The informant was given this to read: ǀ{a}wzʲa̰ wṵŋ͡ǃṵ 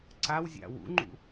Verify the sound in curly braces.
correct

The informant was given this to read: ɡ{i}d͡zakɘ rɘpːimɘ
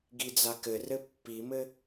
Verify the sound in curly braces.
correct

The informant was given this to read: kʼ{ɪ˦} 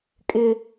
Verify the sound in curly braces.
correct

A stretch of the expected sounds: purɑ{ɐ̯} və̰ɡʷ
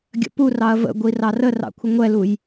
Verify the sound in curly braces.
correct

